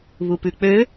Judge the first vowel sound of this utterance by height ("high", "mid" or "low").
high